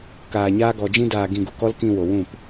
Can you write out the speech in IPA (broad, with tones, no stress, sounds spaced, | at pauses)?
k aː˧ ɲ aː˦ ɡ ɔ˧ d͡ʒ ĩ˦ d aː˧ ɡ ĩ˧ ɡ u˨ k ɔ˦ l k ĩ˧ w o˨ w ũ˦˨ p